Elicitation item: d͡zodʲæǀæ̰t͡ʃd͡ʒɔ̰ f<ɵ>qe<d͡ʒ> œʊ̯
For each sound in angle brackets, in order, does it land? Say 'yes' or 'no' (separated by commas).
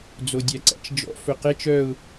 yes, no